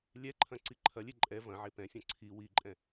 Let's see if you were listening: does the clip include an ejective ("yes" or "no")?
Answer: yes